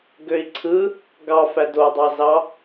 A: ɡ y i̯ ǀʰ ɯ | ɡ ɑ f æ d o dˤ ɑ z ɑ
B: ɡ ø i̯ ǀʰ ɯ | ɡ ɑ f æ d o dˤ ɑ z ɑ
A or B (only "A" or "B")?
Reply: B